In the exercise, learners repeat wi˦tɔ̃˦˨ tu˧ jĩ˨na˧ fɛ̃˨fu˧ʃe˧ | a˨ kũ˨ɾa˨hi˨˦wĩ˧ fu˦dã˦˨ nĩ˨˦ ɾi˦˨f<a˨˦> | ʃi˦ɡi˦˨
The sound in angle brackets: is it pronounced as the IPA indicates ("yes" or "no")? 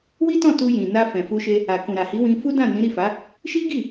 yes